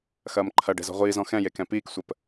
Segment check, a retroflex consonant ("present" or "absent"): present